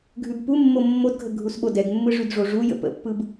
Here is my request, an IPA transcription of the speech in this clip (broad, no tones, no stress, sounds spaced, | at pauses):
ɡʱ ʉ b p u mː o mː o d ɡʱ ə ɡʱ u s ɓ o d ɛ ɡ mː ɯ ʐ ʉ d ʐ o ʐ u j ə̰ p ə̰ pː ɯ b